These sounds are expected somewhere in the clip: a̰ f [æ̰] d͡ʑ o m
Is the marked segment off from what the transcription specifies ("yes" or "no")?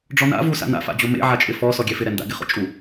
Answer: yes